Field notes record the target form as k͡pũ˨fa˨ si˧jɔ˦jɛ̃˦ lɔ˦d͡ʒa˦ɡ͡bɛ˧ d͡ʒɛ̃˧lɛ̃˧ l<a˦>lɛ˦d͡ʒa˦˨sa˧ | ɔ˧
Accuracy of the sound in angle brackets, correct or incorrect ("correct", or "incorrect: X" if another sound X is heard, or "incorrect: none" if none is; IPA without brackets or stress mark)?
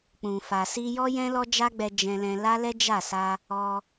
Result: correct